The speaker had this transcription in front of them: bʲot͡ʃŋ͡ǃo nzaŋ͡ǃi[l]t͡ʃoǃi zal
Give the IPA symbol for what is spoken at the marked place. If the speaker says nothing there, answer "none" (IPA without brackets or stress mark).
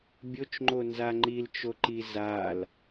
l